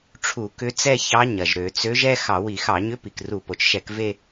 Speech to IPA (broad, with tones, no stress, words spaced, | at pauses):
ʈ͡ʂʰu˧˩˧kʏ˧˥t͡sɛ˥˧çɑ˧˥ ɲɐ˩ʒɾø˧˩˧t͡sø˧˥ʒ ɛ˥˧ xɑ˧˩˧wi˧˩˧xɑ˧˩˧ɲʏ˧˥ pi˩kru˧˩˧po˩t͡ʃʃɛ˧˩˧k ve˥˧